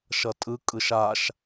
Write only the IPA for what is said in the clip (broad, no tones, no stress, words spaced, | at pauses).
ʃʌtʼɯ kʼɯʃaʃ